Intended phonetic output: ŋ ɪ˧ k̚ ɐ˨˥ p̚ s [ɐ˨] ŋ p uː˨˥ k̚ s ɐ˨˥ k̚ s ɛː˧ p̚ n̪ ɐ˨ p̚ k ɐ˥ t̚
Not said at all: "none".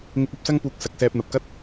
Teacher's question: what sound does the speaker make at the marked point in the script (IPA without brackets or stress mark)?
ɐ˥